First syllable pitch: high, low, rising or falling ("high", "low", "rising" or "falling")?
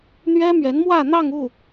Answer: high